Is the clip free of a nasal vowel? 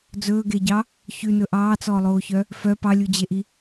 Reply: yes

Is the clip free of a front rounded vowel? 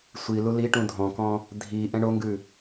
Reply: yes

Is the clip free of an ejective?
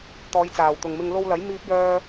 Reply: yes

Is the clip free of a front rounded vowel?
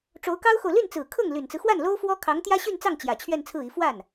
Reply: no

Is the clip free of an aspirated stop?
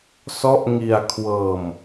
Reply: no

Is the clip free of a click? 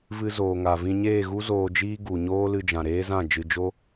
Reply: yes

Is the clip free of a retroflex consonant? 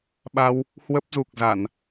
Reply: yes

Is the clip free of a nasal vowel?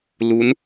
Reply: yes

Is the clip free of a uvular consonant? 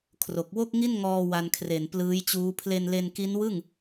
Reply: yes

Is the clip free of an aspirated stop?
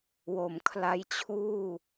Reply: no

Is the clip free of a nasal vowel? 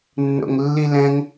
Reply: no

